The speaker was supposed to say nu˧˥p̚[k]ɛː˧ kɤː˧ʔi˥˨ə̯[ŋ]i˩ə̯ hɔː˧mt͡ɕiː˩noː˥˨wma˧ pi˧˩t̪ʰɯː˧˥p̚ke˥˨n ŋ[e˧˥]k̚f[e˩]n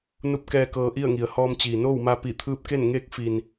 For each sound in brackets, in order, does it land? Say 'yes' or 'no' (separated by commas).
yes, yes, yes, no